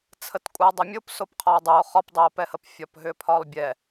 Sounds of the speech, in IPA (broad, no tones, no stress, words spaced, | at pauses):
t͡sʰətkʷʼɯe̯dˤəmʲop sopqʰɒo̯dˤɯo̯ χɒpdˤɛo̯pɛhəp fʲɒpɦʏpʰɒlˠbʲɛ